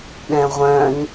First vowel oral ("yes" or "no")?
no